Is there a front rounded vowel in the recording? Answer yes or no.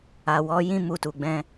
no